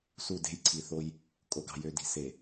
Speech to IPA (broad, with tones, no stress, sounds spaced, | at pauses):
s u˦˨ d e̤˦ j ǀʰ i˨ θ o˦ j | kʼ o˨ ɡ ɑ̤˨ j ø˨ d i̤˨ s e˨